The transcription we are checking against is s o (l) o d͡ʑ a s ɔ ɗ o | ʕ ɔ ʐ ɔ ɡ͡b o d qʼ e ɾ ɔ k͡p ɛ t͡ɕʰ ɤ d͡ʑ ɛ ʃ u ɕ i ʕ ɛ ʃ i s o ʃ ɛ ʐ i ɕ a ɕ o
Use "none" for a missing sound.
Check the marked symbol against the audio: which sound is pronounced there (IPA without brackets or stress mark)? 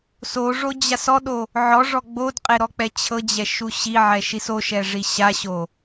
ʐ